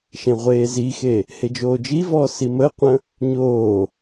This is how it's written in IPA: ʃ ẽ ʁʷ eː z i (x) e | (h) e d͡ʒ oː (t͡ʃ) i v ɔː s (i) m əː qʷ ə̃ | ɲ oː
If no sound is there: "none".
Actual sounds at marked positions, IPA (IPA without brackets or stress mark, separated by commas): x, h, d͡ʒ, i